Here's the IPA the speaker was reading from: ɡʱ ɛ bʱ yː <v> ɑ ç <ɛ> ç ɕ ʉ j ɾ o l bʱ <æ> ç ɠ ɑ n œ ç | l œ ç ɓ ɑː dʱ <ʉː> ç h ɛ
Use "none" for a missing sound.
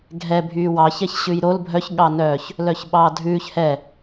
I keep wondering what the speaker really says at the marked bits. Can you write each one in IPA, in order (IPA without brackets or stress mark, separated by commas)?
w, ɛ, œ, ʉː